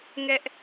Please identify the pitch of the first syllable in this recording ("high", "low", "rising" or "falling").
high